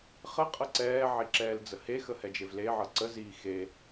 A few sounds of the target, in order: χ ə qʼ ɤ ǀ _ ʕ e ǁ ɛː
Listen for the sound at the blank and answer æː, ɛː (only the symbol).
ɛː